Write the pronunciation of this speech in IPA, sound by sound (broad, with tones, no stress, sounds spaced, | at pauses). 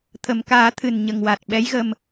t̪ʰ ə˨˩ m k aː˨˩˦ t̪ʰ ɨ˨˩ n ɲ ə˨˩ ŋ w a˨˩ t̚ ɓ ɛ˧˥ j ɣ ə˧ m